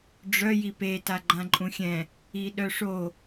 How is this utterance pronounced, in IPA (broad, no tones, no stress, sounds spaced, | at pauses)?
ɖ͡ʐ œ j i p e t a ɡ͡ǃ ã ǃʼ ũ xʲ ɛ̃ | i ɗ œ ʂ o